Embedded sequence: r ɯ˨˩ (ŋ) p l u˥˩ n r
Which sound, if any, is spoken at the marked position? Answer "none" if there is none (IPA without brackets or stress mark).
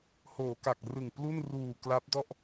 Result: ŋ